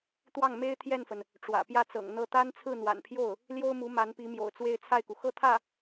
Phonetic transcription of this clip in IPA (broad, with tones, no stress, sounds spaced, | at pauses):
t̪ w ɑ˥˩ ŋ m e˥ ɪ̯ t̪ʰ j ɛ˥˩ n f ə˩ n | ʈ͡ʂ w ä̰˨˩ p j ä˥˩ t͡s ɤ̰˨˩ ŋ n̪ ɤ˥˩ t̪ a˥ n t͡sʰ ɹ̩˥˩ n̪ w a̰˨˩ n pʰ j o˥˩ ʊ̯ | l j o˥ ʊ̯ m u˧˥ m a˧˥ n p i˧˥ m j o̰˨˩ ʊ̯ t͡s w e˥˧ ɪ̯ t͡sʰ a˥˩ ɪ̯ k u˩ x ɤ˥˧ t̪ʰ ä˥˩